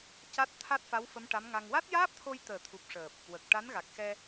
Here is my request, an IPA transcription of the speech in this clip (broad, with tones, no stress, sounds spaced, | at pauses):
c a˦˥ t̚ t̪ʰ a˦˥ t̚ f a˧˥ w f ə˧˥ m ʈ a˧˥ m ŋ a˧ ŋ w a˦˥ t̚ j aː˦˥ p̚ t̪ʰ o˧ j t̪ əː˨˩ t̪ʰ u˨˩ p̚ ʂ əː˨˩ p̚ | w ə˨˩ k̚ ʈ a˧˥ n ɣ a˨˩ k̚ x ɛ˧